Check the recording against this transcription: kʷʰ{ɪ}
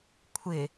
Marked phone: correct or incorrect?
correct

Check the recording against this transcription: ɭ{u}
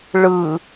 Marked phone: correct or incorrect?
incorrect: ɯ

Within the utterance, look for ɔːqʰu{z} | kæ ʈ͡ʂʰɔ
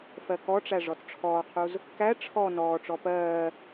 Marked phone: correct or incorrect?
correct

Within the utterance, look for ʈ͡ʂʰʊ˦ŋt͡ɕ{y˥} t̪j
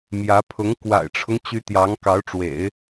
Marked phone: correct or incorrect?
incorrect: y˧˥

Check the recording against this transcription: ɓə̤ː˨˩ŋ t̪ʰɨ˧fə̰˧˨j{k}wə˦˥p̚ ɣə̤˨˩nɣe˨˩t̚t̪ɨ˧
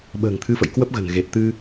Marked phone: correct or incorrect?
correct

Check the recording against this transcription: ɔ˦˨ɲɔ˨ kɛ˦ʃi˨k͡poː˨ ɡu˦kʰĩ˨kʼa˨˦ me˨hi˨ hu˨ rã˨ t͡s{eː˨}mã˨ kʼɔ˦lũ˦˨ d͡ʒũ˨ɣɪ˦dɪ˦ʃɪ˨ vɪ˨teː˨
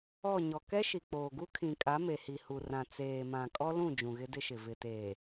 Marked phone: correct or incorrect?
correct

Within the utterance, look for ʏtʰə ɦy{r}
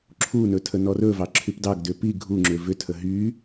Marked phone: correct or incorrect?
incorrect: none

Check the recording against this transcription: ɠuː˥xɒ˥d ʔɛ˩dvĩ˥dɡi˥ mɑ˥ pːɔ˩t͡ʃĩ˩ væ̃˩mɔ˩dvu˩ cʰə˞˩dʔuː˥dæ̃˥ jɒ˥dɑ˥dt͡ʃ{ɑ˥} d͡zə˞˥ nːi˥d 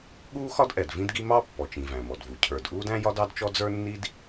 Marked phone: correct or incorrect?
incorrect: ɔ˥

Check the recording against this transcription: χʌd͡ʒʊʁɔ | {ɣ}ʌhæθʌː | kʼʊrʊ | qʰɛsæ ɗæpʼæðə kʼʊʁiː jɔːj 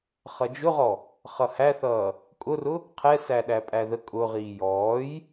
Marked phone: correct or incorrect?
incorrect: χ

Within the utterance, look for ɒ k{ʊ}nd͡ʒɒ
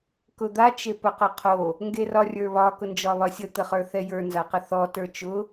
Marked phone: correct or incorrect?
correct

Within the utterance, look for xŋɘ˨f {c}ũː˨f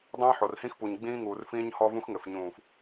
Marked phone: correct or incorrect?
incorrect: ɲ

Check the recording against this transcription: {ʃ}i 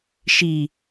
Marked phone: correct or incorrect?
correct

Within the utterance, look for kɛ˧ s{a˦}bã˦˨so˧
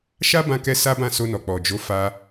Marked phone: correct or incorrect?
correct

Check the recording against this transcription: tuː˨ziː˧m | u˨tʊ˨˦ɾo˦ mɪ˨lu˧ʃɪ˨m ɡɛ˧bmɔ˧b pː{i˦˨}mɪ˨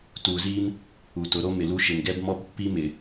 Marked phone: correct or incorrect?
incorrect: i˦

